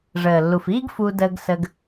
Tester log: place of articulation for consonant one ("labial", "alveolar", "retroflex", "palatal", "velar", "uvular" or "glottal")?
retroflex